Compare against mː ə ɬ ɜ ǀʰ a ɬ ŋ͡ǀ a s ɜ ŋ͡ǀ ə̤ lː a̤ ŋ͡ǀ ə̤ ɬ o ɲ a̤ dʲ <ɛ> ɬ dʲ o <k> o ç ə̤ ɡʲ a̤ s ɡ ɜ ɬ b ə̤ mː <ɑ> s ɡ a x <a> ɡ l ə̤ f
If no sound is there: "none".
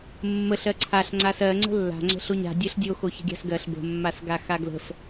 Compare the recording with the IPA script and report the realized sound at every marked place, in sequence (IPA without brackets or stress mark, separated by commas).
ɜ, x, a, a